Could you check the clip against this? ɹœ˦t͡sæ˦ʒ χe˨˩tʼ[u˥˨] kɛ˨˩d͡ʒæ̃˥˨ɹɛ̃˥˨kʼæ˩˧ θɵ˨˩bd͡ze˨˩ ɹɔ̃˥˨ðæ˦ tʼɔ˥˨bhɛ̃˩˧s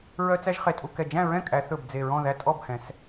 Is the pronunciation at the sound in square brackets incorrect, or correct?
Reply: correct